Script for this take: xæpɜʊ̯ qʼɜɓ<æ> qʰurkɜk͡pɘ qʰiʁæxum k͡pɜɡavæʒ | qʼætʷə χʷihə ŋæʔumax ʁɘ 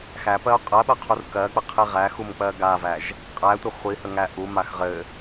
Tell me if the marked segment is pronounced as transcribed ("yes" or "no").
no